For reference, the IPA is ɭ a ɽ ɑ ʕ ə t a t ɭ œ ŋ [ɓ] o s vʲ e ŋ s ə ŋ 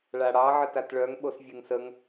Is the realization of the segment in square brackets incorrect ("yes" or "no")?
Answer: no